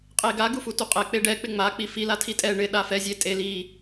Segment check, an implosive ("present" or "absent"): present